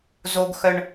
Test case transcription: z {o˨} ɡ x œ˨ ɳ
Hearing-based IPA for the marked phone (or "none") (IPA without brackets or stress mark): o˨